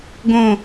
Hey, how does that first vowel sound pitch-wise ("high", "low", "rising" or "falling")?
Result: falling